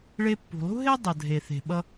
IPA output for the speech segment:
ɭ e˧ pː ṳ˩ lˠ ṳ˥ ɦ e˥ dˤ ʌ˩ dʱ e˩ θ e̤˩ ɓ ʌ˧

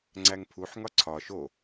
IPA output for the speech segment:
ŋ͡ǀ æ ŋ pʰ u ħ ŋ ɒ ǀʰ ɒ ʃ o

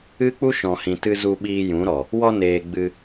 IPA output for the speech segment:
ɨ˦ k͡p u˦ ʃ ɔ̃˨ h ĩ˨ t ɨ˧ z u˧ ɓ iː˧ j ũ˨˦ ɾ ɔ˨ | w ɔ˧ n eː˨ ɡ͡b ɨ˧

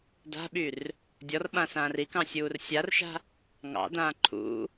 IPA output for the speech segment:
d a̤ ɓ y r | dʲ ɔ r ɓ ã s ãː r i k ɑ̃ sʲ uː r sʲ a r ʃ a̤ | ŋ ɑ̰ d ãː ǃʰ ṵ

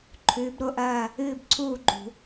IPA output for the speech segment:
ǃʰ ʉː˨˥ b ɾ o˥˨ ʔ ɐː˥˨ | ɨː˥˨ b ǀʰ uː˥˨ ɡ͡ǃ ṳ˧˩˧

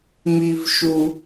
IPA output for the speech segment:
m i˧ v ʃ u˧

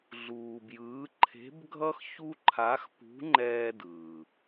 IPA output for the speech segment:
ɮ uː˧ b j ɯː˧˥ ǃʰ e̤˧˥ b ɡʱ ʌ˥ x ç u˥ ǃʰ a˧˥ x p ṳ˧˥ ŋ͡ǃ ɛː˧ d ɯː˩

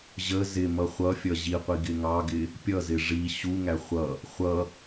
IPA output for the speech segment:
ʑ ə z ɪ m ʌ χʷ ʌ fʲ ʌ ʑ i qʷ i ɡ ɪ ŋ ɑ ɡ ɪ | pʲ ʌ z ɪ ʐ i ɕ u ŋ æ χʷ ʌ | χʷ ʌ

